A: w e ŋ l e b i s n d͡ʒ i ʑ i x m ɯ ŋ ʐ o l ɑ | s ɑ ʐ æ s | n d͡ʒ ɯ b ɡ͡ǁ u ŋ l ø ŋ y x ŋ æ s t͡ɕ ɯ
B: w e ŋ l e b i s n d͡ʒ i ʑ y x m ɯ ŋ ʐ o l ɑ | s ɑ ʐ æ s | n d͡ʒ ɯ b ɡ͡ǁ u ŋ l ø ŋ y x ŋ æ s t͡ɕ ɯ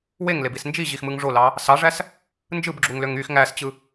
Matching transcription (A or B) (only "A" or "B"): A